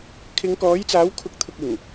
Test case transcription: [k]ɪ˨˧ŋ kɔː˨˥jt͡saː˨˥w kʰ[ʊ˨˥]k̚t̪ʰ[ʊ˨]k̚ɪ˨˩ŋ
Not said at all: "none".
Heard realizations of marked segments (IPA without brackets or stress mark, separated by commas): kʰ, ʊ˨˥, ʊ˨